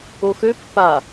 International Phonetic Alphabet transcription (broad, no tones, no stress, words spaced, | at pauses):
oxø pːa